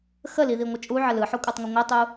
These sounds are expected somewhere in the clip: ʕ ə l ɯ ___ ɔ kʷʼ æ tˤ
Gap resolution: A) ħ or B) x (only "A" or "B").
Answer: A